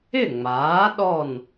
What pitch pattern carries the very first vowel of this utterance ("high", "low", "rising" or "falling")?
falling